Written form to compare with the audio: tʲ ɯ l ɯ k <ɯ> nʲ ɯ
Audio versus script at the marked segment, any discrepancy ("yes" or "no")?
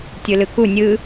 yes